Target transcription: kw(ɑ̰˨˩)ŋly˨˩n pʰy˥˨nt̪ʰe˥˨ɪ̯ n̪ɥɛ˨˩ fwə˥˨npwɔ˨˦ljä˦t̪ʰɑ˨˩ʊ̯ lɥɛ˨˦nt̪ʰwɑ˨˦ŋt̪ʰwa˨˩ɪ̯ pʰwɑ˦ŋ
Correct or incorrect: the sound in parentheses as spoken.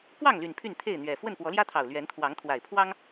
incorrect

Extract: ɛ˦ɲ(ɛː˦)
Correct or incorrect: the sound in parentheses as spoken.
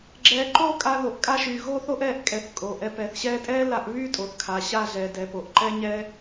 correct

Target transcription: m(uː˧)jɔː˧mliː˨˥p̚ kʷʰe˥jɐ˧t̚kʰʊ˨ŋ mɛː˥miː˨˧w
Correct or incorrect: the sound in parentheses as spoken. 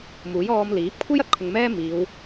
incorrect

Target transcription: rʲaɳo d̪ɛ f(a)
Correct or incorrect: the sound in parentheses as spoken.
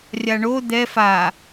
correct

